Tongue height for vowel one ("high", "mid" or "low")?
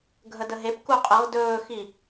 mid